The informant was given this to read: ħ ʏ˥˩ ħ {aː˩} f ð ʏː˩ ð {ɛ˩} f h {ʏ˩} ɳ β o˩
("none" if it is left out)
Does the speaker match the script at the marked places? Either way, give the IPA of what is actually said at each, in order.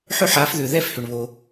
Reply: aː˨˦, ɛ˥˩, ʏ˩

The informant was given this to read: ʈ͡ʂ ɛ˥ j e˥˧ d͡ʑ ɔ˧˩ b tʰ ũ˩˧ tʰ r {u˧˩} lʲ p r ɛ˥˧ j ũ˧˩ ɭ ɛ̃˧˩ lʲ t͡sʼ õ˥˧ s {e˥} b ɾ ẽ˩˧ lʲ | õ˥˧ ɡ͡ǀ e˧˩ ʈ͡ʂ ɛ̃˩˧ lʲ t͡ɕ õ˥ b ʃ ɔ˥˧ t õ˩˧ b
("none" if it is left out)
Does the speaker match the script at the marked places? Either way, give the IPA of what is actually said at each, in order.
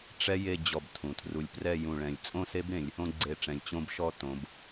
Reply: u˧˩, e˥

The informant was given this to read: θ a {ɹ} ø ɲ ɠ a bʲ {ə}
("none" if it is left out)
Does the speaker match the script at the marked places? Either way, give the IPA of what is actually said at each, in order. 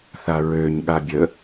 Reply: ɹ, ə

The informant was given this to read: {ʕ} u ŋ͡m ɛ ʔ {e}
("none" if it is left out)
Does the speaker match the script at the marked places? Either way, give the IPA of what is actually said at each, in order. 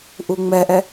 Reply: ʔ, ɛ

